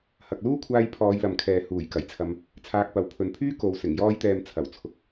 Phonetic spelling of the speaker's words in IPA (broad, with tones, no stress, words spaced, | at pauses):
hɐ˨k̚luː˥kʷʰaː˧j pʰɔː˨˧jlɐ˨mkʰɛː˨ huː˨˩j kɐ˨˩jt͡sʰɐ˧m | t͡sʰaː˧k̚pɐ˨w pʰɵ˨npʰyː˥ ko˨˧w sɪ˨˩ŋjɔː˥jt̪ɛː˧m t͡sʰɐ˨˩w t͡sʰʊ˨k̚